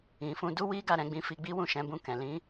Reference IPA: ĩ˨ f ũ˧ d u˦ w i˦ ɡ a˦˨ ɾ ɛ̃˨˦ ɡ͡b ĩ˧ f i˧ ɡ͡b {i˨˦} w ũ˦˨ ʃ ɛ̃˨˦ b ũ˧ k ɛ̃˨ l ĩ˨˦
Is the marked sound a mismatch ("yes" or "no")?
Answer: yes